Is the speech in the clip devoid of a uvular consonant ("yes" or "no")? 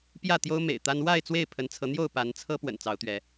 yes